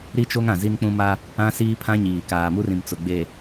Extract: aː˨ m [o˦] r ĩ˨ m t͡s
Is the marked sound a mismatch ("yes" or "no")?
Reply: yes